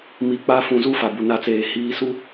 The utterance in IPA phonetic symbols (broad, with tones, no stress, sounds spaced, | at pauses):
m i˨ k͡p a˦ f ũ˨ z u˦ f a˨ b u˨ n a˦ t͡s eː˨ h iː˨ s u˦